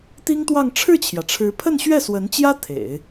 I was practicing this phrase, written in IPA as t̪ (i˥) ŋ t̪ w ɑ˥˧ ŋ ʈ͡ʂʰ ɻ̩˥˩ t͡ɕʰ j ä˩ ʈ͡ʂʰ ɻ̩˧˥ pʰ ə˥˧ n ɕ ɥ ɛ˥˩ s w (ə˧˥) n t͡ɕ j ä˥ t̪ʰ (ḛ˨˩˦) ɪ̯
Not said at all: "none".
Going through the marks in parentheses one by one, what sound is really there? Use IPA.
i˥, ə˧˥, ḛ˨˩˦

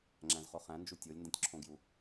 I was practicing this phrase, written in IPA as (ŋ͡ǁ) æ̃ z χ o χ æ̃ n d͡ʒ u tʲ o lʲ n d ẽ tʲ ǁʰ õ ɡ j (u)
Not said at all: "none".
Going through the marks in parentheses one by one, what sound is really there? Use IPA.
ŋ͡ǁ, u

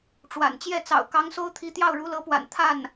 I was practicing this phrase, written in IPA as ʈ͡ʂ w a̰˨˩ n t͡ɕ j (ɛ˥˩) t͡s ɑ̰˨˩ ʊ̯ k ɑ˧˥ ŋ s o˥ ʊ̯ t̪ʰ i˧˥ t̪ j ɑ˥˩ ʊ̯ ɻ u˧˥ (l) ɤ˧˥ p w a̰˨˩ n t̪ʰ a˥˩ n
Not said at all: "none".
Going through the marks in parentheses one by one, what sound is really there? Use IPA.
ɛ˥˩, l

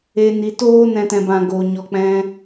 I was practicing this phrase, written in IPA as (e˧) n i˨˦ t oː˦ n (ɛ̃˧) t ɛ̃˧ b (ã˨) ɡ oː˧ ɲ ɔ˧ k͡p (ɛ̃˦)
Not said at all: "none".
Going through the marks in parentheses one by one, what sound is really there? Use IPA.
e˧, ɛ̃˧, ã˧, ɛ̃˦

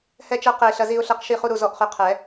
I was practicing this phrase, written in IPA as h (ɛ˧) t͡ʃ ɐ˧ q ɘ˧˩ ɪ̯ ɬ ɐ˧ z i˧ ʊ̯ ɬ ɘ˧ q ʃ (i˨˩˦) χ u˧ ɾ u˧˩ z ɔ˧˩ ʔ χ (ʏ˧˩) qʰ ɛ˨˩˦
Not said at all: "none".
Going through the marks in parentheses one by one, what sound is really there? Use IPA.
ɛ˧, i˧˩, ʏ˧˩

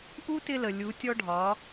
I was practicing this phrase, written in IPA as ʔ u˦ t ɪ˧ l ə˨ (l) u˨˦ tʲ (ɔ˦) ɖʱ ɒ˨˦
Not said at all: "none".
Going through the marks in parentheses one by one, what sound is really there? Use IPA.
lʲ, ɔ˦

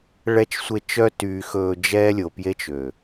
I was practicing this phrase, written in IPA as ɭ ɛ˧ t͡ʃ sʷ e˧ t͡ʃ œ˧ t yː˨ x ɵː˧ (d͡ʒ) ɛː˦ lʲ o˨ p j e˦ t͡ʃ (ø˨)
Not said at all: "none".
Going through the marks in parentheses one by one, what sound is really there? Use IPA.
d͡ʒ, ø˨

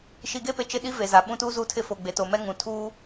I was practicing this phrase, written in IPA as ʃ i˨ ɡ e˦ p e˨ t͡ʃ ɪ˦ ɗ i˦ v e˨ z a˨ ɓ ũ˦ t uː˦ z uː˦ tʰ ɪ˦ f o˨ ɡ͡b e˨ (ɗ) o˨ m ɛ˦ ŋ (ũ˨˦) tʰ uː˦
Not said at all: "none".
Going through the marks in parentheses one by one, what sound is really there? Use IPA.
t, ũ˨

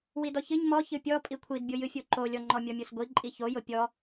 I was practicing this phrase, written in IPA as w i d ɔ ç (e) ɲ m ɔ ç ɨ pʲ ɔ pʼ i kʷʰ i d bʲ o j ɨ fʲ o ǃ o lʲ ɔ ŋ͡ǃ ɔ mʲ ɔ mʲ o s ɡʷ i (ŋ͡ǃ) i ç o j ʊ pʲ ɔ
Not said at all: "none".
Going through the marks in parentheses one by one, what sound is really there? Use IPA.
ɨ, ǃʼ

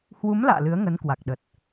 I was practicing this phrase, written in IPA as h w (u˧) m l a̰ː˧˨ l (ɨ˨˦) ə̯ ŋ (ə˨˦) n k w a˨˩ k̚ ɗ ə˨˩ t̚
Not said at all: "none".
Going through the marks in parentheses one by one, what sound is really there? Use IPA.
u˨˦, ɨ˨˦, ə˨˦

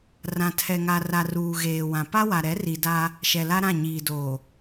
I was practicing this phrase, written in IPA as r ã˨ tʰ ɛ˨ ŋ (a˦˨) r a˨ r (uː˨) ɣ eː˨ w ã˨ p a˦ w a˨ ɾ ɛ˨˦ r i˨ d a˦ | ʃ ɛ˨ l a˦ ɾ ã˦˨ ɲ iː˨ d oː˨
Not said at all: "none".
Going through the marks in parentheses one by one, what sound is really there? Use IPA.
a˨, uː˨

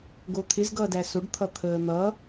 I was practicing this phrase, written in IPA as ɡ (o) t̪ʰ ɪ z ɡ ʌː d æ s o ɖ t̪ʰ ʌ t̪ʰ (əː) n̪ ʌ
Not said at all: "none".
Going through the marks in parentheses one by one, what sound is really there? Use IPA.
o, əː

